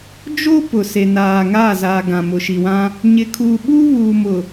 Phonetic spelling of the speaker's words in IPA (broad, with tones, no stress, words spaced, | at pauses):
d͡ʒo˦ pʊ˨se˨naː˨ ŋaː˦˨zaː˨ɡã˨ mʊ˨ʃi˨wã˦ | ɲɪ˨kʰuː˨ɓuː˦ βuː˨mʊ˨